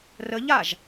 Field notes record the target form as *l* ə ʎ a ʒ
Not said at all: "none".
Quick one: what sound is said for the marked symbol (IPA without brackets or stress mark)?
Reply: r